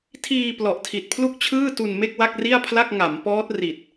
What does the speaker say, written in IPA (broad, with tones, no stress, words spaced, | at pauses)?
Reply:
tʰiː˧ plɔ˨˩ʔtʰi˨˩t̚pʰlu˥˩k̚ t͡ɕʰɯː˥˩tu˧nme˥˩k̚ wa˥˩k̚ri˥˩a̯pʰla˥˩k̚ ŋa˩˦mpɔː˦˥t̚ri˨˩t̚